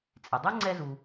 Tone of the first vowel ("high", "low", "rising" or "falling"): low